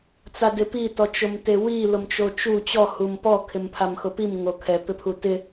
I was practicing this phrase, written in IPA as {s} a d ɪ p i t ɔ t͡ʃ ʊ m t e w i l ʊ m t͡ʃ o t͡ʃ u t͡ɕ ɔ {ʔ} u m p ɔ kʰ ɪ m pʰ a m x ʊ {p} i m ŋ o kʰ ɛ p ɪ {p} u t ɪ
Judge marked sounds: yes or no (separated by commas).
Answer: no, no, yes, no